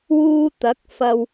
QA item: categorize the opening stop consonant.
plain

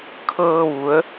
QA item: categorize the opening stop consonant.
aspirated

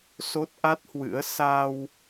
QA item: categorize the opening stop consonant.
plain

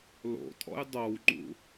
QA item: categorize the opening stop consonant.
ejective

